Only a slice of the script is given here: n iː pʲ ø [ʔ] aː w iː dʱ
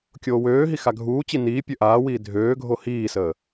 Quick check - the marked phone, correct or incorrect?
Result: correct